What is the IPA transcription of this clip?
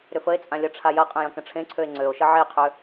ɾʏfəe̯t͡sʼã lʲɐʈ͡ʂʰajɐqʼə̃ jɐ̃kə̃ʈ͡ʂʰẽǀʰøe̯ ŋ͡ǀøo̯ʃə ʕeqʰø

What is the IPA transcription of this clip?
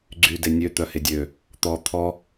ɡ͡ǀyde nʲøt̪œhe dʲø | t̪ɔ t̪ʰɔ

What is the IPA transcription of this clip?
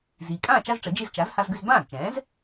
ziː˩kʼãː˥˩ t͡ʃa˥zʈ͡ʂə˩˥d͡ʒi˥˩z t͡ʃa˩˥z ha˧z ɡʏ˧zbãː˥˩zt͡ʃɛ̃ː˩˥z

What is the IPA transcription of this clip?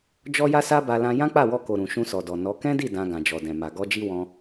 d͡ʒɔ˦ja˦sa˦ba˧ lã˧ jã˦k͡pa˦˨wɔ˧ ko˨ɾũ˨ ʃũ˧sɔ˨dɔ˨ nɔ˨˦ kɛ̃˦di˦˨ dã˧ɡã˨d͡ʒɔ˨dɛ̃˨ ma˨ ɡɔ˧d͡ʒi˦ wɔ̃˧

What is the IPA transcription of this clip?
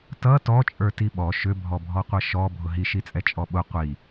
tʌ tɔt͡ʃʼə˞ tiɓɔ ʃʏbʱɔ bʱɔqʷʌʃɔ bʱʊɦiʃit͡sʼɛ t͡ʃʼɔɓʊ qʷi

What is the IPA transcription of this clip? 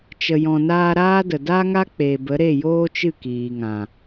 t͡ʃə˨jɔ̃˨naː˧ ɾaː˦də˨ da˦ŋa˦k͡pe˨ bə˨˦ɾe˦˨joː˦t͡ʃɨ˦˨ kiː˨ŋã˨

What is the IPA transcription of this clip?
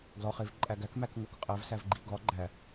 ɡlɒχev ǃʼæɡæk mækŋokqʼæv sævɡ͡ǃiɡɒ ɡ͡ǃæ

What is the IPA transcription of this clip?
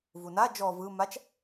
vuna d͡ʒɔ vɯ mat͡ʃ

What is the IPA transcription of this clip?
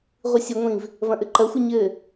ʁʷɨsʲɨŋʷĩv | vɐ̃ʔɘǃɐxʷɨ ɲɘ

